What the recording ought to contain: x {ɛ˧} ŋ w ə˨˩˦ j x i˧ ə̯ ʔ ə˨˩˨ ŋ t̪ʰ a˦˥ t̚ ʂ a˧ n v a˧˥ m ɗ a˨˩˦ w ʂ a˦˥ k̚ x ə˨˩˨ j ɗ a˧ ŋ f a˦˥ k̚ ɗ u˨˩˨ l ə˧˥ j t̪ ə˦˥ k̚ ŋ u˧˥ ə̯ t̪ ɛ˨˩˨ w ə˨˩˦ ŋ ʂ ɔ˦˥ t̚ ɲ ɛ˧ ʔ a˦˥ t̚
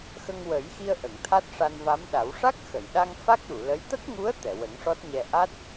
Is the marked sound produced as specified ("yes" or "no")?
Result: no